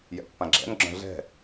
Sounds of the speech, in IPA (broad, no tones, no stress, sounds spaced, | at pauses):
j ɛ̰ pː ã ɡ͡ǁ ɛ̰ n ɡ͡ǁ œ̃ ɮ ɛ̤